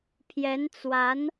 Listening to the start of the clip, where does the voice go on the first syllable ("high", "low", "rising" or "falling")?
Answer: rising